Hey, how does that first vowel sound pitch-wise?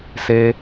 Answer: high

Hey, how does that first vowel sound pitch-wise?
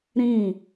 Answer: falling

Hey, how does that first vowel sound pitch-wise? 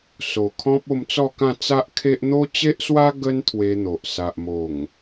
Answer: low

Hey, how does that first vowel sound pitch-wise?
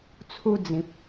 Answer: high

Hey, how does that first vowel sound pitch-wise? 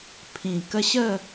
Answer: low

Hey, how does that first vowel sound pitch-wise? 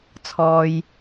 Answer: low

